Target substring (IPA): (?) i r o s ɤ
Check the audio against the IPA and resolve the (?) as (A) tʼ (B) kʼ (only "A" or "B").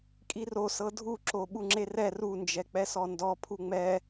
B